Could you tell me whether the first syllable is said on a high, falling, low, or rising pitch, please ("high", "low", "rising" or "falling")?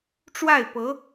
falling